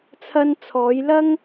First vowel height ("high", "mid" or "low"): low